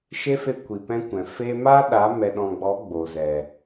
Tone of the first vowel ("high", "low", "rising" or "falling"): high